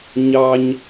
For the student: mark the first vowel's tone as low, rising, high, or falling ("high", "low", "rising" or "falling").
low